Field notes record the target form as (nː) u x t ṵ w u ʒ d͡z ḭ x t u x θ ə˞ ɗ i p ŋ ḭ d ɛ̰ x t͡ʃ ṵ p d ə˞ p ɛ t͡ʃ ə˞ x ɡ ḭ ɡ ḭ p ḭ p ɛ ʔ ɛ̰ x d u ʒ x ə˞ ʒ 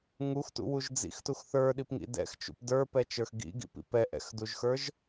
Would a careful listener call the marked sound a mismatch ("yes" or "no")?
yes